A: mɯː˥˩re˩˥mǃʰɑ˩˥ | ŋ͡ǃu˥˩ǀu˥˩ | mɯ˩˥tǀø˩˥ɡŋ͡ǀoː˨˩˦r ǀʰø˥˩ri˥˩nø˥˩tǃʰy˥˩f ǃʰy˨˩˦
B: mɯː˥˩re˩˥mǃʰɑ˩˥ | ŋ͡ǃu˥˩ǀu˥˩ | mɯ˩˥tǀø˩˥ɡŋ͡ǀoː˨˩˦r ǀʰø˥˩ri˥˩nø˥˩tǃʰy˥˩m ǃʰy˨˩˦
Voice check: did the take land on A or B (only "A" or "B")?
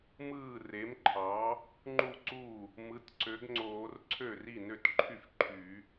A